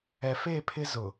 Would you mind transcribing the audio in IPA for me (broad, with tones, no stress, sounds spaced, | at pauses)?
ɛ˨ f e˦˨ pʰ ɪ˦ z ʊ˨